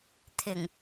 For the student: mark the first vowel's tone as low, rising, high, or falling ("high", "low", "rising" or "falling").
low